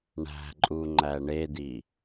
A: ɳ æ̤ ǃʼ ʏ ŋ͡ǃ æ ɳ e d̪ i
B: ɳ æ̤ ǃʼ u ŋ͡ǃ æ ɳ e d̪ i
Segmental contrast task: B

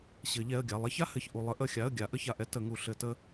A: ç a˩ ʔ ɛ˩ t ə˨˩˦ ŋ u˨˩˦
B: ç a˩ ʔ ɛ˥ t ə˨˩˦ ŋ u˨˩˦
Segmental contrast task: B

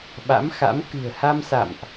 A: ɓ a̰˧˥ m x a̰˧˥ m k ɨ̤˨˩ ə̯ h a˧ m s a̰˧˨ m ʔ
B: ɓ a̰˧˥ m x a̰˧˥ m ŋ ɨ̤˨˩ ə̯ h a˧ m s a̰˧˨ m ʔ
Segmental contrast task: A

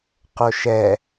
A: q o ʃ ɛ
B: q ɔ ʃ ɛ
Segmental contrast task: A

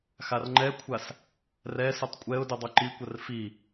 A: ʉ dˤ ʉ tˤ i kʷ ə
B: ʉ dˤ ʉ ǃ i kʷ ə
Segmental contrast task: B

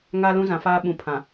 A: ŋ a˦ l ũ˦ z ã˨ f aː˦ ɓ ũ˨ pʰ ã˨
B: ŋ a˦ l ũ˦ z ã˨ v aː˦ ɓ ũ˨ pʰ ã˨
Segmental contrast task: A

